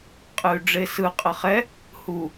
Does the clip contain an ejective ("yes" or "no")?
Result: yes